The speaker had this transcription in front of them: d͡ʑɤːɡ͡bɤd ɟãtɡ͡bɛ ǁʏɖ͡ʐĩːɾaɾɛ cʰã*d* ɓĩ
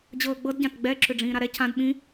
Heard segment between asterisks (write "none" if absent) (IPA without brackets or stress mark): d